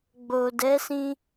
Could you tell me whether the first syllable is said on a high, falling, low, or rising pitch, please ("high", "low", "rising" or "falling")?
low